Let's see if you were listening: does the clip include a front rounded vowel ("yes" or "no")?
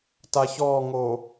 no